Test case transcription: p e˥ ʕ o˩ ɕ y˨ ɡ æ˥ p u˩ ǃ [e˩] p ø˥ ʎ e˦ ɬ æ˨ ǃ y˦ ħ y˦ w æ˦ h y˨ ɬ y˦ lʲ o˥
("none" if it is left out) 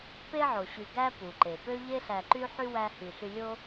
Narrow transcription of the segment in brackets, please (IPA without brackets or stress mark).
e˩